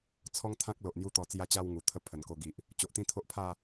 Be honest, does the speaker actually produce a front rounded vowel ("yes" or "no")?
no